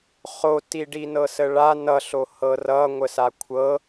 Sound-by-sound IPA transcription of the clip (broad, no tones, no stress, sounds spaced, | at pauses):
χ o t i ɖ i n ɤ s ə ɭ a n ʌ ɬ o h ɤ r ʌ ŋʷ ə s a kʷʰ ɤ